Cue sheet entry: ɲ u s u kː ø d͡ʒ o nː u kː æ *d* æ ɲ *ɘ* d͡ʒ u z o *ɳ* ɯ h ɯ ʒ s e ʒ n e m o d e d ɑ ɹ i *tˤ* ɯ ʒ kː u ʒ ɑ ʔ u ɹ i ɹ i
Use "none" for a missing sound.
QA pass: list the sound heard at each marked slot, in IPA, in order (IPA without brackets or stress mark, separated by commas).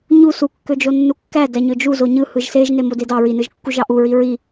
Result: d, ø, ɲ, n